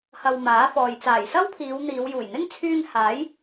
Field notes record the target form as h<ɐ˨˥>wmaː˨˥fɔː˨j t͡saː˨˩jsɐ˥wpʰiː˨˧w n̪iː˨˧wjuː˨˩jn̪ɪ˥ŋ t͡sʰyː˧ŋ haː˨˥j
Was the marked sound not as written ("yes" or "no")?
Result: yes